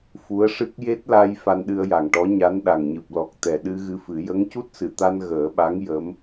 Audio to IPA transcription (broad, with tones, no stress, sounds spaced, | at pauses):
f u˧˥ ə̯ ʂ ɨ˦˥ k̚ j e˦˥ t̚ l a˧ j f a˧ n ɗ ɨ˧ ə̯ j a˨˩ ŋ ʈ ɔ˧˥ ɲ a˧˥ n ɗ a˨˩ ŋ ɲ ɨ˨˩ p̚ l ɔ˨˩ k̚ t̪ ɛ˨˩ ɗ ɨ˧ ɣ ɨ˧ f ɨ˨˩˦ j ə˧˥ ŋ c u˦˥ t̚ s ɨ˨˩˨ t̪ a˧ n ɣ əː˨˩˦ ɓ a˧˥ ŋ j ə˧˥ m